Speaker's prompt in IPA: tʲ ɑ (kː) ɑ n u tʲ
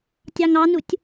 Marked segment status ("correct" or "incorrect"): incorrect